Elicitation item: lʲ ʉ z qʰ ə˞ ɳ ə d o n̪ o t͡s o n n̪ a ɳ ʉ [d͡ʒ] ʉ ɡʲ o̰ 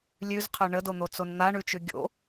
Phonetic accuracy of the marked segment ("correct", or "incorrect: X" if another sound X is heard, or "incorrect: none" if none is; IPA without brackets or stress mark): incorrect: t͡ʃ